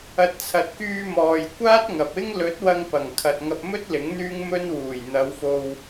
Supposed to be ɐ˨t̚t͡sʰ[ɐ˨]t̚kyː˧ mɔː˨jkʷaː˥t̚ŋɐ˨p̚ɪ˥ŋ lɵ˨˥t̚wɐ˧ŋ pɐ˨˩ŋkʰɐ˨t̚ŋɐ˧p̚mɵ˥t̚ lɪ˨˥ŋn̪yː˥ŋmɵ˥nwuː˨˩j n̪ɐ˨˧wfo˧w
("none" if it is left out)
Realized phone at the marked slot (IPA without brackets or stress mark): ɐ˨